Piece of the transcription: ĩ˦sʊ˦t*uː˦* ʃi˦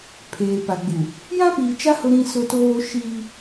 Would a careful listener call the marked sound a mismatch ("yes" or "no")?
yes